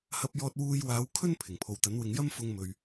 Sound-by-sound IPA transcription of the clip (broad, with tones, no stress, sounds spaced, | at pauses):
h ɐ˧ p̚ j ɔː˧ t̚ w uː˧ j w aː˨˧ w kʰ ɵ˥ n pʰ ɪ˨˩ ŋ pʰ o˨ w t̪ ɐ˨˥ n w ɪ˧ ŋ j ɐ˥ m f ʊ˧ ŋ m ɵ˨ ɥ